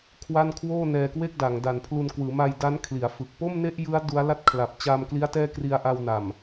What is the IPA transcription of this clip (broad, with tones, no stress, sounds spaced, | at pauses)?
kʰ w a˥˩ n kʰ w oː˥˩ n ɛː˧ k w e˥˩ k̚ d a˩˦ ŋ d a˨˩ n pʰ l u˧ n k w ɯː˩˦ m a˧ j d a˦˥ n kʰ l i˩˦ a̯ f ɯ˨˩ k̚ p o˥˩ m n e˥˩ ʔ j ɯ˦˥ a̯ d u˦˥ a̯ l a˥˩ t̚ kʰ l a˨˩ p̚ t͡ɕ a˧ m k l i˦˥ a̯ t ɛː˥˩ k r i˧ a̯ ʔ a˧ w n a˨˩ m